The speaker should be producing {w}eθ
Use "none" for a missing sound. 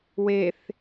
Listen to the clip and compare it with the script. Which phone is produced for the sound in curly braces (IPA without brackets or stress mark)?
w